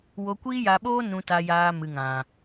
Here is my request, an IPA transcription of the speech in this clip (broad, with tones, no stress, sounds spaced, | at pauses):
w o˧ kʷ iː˦ j a˧ ɓ oː˦ n ũ˨ t a˨ j aː˨ m ɨ˨ ŋ ã˨